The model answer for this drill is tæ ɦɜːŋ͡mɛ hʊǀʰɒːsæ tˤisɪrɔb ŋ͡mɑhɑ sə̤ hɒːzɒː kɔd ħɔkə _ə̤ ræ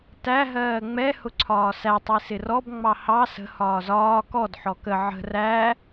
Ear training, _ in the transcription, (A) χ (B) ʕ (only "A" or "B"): B